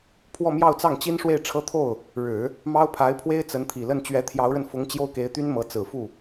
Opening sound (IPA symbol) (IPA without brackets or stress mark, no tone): pʰ